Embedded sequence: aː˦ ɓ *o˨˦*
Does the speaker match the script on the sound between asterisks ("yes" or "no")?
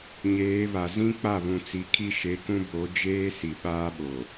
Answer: no